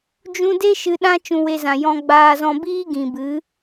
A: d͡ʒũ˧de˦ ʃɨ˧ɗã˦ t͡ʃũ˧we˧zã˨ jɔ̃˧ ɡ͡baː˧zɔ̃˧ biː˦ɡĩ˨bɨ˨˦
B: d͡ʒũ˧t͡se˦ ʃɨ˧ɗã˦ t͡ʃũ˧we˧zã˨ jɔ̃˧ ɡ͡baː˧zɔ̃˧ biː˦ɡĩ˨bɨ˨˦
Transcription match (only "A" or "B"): A